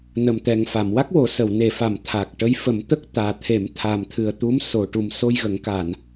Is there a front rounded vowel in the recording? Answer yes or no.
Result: no